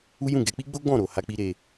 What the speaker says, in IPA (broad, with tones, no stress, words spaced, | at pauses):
u˦jũ˦˨ ɡɛ˧k͡pi˦ɡ͡bo˦ ɡ͡bɔ̃˦˨ɾo˨ ha˧k͡pi˧ ɾe˧